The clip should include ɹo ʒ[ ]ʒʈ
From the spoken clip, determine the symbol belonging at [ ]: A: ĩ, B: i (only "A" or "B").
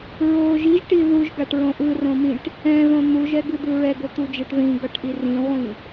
B